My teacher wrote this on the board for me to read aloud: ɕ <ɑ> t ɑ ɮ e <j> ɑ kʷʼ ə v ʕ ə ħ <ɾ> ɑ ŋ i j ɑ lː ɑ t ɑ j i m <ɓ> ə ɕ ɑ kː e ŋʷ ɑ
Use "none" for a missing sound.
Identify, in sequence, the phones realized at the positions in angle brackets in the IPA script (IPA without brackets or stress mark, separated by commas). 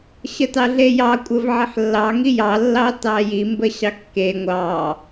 ə, j, lː, b